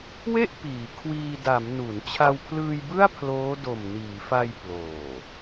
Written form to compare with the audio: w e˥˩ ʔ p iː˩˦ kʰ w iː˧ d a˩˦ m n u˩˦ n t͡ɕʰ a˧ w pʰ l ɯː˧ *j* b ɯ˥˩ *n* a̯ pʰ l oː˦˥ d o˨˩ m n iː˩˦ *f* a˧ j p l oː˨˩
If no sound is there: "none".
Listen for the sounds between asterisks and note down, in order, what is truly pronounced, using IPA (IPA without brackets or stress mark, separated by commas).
j, none, f